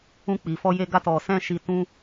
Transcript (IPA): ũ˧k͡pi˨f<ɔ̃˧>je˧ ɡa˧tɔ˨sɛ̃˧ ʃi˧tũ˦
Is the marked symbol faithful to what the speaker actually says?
no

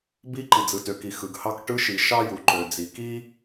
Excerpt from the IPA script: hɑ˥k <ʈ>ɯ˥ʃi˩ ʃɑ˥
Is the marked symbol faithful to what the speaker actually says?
yes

